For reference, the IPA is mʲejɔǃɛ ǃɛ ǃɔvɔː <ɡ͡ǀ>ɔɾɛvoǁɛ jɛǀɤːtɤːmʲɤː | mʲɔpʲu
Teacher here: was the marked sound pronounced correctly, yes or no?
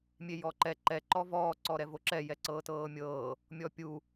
no